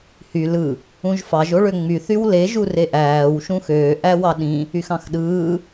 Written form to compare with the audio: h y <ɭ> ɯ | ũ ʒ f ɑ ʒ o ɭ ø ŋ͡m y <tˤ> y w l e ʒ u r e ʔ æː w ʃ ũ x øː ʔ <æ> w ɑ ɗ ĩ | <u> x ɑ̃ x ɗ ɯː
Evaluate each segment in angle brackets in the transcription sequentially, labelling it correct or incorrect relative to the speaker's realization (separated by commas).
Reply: incorrect, incorrect, correct, incorrect